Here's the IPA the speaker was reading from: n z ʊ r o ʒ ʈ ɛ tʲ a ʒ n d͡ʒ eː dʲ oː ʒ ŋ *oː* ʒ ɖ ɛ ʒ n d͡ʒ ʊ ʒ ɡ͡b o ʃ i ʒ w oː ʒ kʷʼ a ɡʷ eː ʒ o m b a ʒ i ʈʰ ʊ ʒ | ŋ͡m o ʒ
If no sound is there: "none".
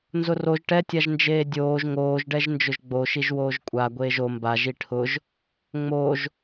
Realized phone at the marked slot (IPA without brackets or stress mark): oː